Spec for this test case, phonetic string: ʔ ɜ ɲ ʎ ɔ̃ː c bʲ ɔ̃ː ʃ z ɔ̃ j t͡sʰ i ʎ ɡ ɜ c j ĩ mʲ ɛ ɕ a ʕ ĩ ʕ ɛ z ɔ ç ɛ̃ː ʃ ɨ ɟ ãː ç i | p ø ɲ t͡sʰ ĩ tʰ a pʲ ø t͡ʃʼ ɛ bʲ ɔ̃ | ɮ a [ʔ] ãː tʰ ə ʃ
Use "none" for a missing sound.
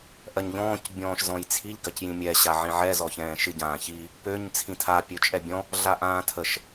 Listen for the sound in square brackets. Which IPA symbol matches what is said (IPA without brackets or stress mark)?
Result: ʔ